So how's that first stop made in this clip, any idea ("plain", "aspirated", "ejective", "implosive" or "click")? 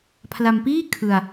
aspirated